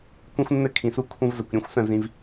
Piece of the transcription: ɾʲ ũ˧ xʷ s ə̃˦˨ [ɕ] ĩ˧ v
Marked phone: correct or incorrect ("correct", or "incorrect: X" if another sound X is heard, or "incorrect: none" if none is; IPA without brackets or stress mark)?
incorrect: z